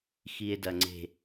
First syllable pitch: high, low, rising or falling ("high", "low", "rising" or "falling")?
low